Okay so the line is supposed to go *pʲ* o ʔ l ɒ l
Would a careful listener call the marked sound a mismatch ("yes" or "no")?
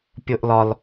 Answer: no